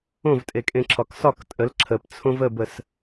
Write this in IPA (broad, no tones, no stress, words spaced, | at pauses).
õvtʼekʼẽǁʰɒk sɒk tʼəl ǁʰəpt͡sʰõv əbəs